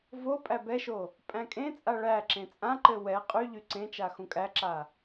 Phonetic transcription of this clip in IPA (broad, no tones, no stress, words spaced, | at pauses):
vo pʼæbɛʃo | pʼæ̃kʼẽt͡sʼa ɭæǁẽ t͡sʼãǃɘ wɛ qʼy ʎyǀẽt͡ʃa xũkʼæǁa